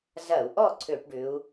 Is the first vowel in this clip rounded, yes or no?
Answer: no